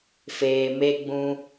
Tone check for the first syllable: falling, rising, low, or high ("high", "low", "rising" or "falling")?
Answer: low